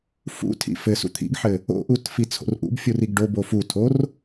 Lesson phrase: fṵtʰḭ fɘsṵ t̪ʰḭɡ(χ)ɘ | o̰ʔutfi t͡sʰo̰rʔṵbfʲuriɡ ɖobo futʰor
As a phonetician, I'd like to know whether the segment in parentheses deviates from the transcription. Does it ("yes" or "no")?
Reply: yes